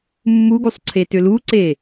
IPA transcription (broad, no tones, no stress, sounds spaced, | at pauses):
mː u ɡ u sˤ ǀʰ e t ʏ l u ǀ e